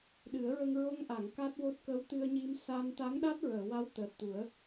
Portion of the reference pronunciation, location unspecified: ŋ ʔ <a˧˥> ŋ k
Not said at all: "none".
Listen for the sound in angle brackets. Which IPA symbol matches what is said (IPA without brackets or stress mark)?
a˨˩˨